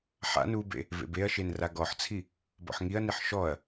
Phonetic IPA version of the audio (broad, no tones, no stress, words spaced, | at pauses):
ħa̰n ubḛ | vḛbeɐ̯ʃen raɡɔħt͡sʰi | bɔ̰ħŋiɐ̯niħ ʃɔɐ̯